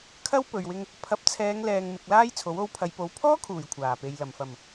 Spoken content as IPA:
kʰ ɐ˥ w p ɵ˨ ɥ w ɪ˧ ŋ | pʰ ɐ˨˥ p̚ t͡sʰ ɛː˨˧ ŋ l ɛː˨ ŋ m ɪ˧ k̚ l aː˥ j t͡sʰ o˨˥ w o˧ w pʰ ɐ˨ j p o˨˧ w pʰ ɔː˥ kʰ uː˨˩ j kʷʰ aː˨˩ p e˨ j l ɐ˨˩ m f ɐ˨˩ m

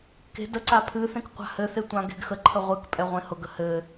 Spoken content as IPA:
k e̤ d ə ǀ a pʰ ɨ θ ẽ k qʷ a̤ h ɘ θ e tʷ ã ɡ e̤ ɡ x ə ǃʰ ə ʁʷ ɨ k pʼ ɛ ʁʷ ẽ h ʊ ɡ ə h ɘ

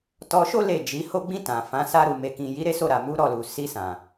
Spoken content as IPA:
t ɔ˧ ʃ o˦ l e˦˨ d͡ʒ i˨˦ h o˧ ɡ͡b ĩ˧ t ã˨ f ã˨˦ s a˧ ɾ u˨ m e˨ k ĩ˨ j i˨˦ ɾ e˦ s o˦˨ ɾ a˨ m u˨˦ ɾ ɔ˦˨ l u˨ s i˧ s ã˨

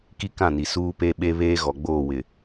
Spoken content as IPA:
k i˦ k ã˦˨ n i˨ s uː˦ p e˦ ɓ e˦ β eː˦ ɣ ɔ˨ ɡ͡b oː˦˨ w ɪ˨

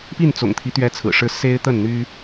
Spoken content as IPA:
p i˥˨ n t͡s ʊ̰˨˩ ŋ t̪ʰ i˦ t̪ ɥ ɛ˦ t͡sʰ ɹ̩˨˩ ʂ ɻ̩˦ s e˦ ɪ̯ t̪ ə˥˨ n n̪ y˦

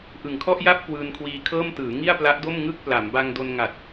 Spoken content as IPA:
ʔ ɯ˨˩ ŋ kʰ ɔ˥˩ ʔ j a˥˩ p̚ k w ɯː˧ n kʰ w iː˧ kʰ ɤː˥˩ m t ɯː˩˦ ŋ i˥˩ a̯ p l a˦˥ ʔ d o˥˩ m ŋ ɯ˥˩ k̚ p l a˩˦ m b a˧ ŋ d o˧ n ŋ a˨˩ t̚

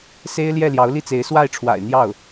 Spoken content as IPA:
s e˥ ɪ̯ l j ɛ˥˩ l j ɑ˧˥ ʊ̯ l i˥˩ t͡s e˧˥ ɪ̯ s w a˥˩ ɪ̯ ʈ͡ʂʰ w a̰˨˩ ɪ̯ n̪ j ɑ˥˩ ʊ̯

